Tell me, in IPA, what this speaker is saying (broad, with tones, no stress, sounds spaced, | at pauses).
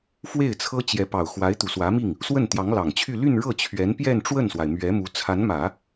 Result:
f w e˥˩ ɪ̯ t͡sʰ ɤ˥ t͡ɕ j ɛ˧˥ p ɑ˨˩ ʊ̯ x w a˧˥ ɪ̯ t̪ u˨˩ s w ä˧˥ m i˥˩ ŋ | s w ə˥˩ n t̪ j ɑ˧˥ ŋ l ɑ˨˩ ŋ t͡ɕʰ y˥˧ l y˥˧ n ɻ ɤ˥˩ t͡ɕʰ ɥ ɛ˧˥ n p j ɛ˥˧ n ʈ͡ʂ w ə˥˩ n s w a˩ ɪ̯ m ɥ ɛ˧˥ m u˧˥ t͡sʰ a˧˥ n m ä˨˩˦